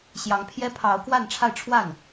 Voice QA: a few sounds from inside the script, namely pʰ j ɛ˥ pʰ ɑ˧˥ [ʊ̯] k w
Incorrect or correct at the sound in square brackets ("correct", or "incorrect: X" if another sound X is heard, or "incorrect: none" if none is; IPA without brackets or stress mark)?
correct